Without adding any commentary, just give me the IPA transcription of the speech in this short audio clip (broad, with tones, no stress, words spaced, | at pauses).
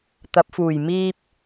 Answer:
t̪ɐ˨˥p̚fuː˨˩j miː˥p̚